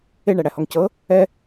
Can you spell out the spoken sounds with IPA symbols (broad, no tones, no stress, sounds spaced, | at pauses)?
e ɳ æ ɽ æ h ɔ ŋ c ɤ | ɛ